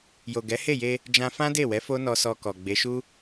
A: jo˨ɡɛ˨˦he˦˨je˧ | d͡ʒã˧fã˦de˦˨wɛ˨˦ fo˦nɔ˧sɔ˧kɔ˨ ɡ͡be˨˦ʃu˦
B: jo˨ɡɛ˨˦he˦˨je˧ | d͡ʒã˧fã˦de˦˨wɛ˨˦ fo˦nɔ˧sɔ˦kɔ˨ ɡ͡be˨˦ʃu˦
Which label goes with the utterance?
A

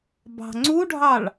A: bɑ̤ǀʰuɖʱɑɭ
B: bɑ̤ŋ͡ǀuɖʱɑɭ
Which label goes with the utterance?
B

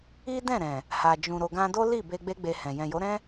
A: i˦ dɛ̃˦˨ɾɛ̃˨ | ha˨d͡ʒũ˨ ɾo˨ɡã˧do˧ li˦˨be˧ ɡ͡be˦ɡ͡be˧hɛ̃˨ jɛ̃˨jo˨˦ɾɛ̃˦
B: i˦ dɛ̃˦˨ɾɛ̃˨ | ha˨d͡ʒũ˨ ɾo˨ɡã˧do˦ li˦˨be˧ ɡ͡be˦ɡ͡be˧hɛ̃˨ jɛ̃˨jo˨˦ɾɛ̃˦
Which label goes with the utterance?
B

